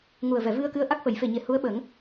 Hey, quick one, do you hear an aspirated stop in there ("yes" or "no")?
no